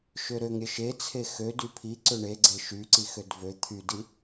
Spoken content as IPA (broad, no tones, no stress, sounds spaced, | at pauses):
ʃ ø ɾ ø ŋ ɾʲ ə ʃ e t͡sʰ e x ø d y pʰ i ǀ ø ɳ e ɡ͡ǀ e ʃ y ǀ i x ø d v ø t̪ʰ y d i